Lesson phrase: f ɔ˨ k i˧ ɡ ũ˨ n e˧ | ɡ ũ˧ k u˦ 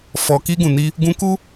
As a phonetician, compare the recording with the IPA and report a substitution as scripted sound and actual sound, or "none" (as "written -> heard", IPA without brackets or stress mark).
e˧ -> i˧